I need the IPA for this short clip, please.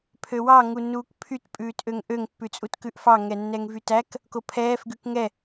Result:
pʰ ø w ɑ ŋ u nː uː k pʰ y t pʼ ʉː t ʔ ø ŋ ʔ ø ŋ pː ʉ t͡sʼ u t k ʉ ʔ f ɑ ŋ ɛ nː ɛ ŋ v y t æ k | k o pʰ ɛː f ɡ ʉ k ŋ ɛ

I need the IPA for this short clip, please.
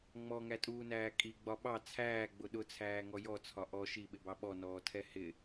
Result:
ŋ͡m ɔ ŋ æ tʼ uː n æː kʼ i ɡ͡b ɒ ɓ ɑ t͡sʰ æː ɡ͡b ʊ ɗ ʊ t͡sʰ æː ŋ ɔ j ɔ t͡sʰ ɒ ʔ ɔ ʃ i ɓ ɪ b ɑ ɓ ɔ n ɔː tʰ ɛ h ɪ

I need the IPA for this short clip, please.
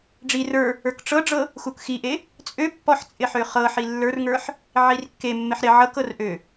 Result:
ɖ͡ʐ i r ə˞ | ə˞ k ʈ͡ʂ ɤ ɖ͡ʐ ɤ | x u k x i ʔ e | t͡sʼ ø pː ɔ ħ t͡sʼ ɪ ħ ø χ ɤ ħ i lː ə˞ r ŋ ə˞ ħ | ʕ i r kː e mː ɪ ħ ɾ ɪ ʕ ɤ k ɤ r ʔ ø

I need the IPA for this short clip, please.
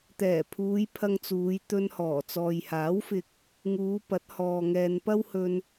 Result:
t̪ ɛː˨˩ pʰ uː˨˧ j pʰ ɐ˧ ŋ t͡s uː˨˧ j t̪ ɵ˧ n h ɔː˨˩ t͡s ɔː˨ j h aː˨˥ w f ɪ˧ k̚ | ŋ uː˨˧ p ɐ˨˥ t̚ h ɔː˨ ŋ ɛː˨ n p ɐ˥ w h ɵ˧ n

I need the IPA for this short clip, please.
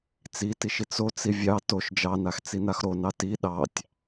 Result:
t͡s i t i ʃ i t͡s o t͡s i vʲ ɑ t o ʃ d͡ʒ ɑ n a x t͡s i n a x ɾ o n ɑ t i ɗ ɑ tʲ

